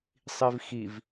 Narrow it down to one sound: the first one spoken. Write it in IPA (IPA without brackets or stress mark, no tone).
sˤ